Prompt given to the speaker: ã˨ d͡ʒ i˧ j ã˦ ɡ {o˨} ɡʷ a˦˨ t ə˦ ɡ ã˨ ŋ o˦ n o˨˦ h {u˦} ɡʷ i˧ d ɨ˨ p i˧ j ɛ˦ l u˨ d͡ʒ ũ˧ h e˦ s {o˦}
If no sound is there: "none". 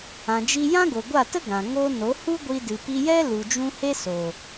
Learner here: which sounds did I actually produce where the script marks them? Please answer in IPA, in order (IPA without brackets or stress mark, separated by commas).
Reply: o˨, u˦, o˨